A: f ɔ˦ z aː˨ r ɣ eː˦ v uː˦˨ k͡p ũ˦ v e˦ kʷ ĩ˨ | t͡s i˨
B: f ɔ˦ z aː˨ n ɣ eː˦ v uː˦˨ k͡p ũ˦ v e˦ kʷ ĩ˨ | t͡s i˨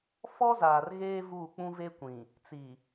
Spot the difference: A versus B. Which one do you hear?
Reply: A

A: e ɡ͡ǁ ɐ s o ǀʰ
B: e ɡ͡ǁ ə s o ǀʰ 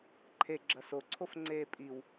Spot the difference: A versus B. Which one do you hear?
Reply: A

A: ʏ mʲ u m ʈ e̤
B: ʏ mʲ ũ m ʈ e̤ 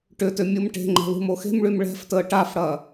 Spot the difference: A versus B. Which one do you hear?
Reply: A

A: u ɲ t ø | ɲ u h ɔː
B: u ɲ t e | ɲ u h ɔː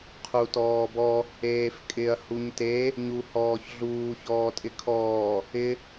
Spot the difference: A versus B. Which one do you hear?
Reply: B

